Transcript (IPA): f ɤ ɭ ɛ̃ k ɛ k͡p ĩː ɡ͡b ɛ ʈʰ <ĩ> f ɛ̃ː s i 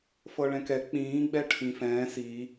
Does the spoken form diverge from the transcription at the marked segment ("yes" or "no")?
no